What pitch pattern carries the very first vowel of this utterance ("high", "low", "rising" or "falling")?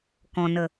low